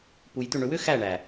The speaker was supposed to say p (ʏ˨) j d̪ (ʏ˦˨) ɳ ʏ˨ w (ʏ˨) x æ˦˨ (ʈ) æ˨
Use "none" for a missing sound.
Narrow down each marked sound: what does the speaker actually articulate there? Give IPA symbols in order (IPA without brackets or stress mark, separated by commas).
u˨, ʏ˦˨, ʏ˦, ɳ